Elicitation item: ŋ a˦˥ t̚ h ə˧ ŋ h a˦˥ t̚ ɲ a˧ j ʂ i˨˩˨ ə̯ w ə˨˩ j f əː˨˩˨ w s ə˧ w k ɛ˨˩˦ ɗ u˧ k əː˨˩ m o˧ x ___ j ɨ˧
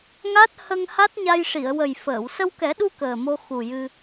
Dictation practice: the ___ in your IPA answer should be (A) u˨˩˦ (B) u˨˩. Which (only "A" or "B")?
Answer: B